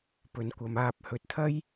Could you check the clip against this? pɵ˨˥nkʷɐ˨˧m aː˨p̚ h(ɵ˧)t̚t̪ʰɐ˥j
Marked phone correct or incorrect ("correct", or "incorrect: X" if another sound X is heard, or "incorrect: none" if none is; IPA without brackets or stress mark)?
incorrect: ɵ˨